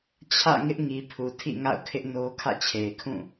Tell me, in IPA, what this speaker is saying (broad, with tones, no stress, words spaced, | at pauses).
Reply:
t͡ɕʰä̰˦˨ ŋɪ˦ʔŋi˨pʰu˨ tʰḭ˦˨ŋa̰˦˨ʊ̯kʰɪ˦ʔ no˦ kʰä̰˦˨t͡ɕʰe˨ɪ̯ kʰũ˦˨